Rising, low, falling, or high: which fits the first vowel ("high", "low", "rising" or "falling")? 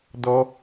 high